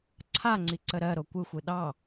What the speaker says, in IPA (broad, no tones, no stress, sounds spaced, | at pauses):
ǀʰ a ŋ͡ǀ i ǀ ə ɾ ɜ ɾ o kʷ ɯ xʷ ɯ ɗ ɑ